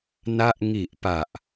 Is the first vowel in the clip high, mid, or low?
low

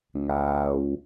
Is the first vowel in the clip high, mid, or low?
low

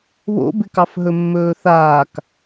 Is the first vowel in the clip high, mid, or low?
mid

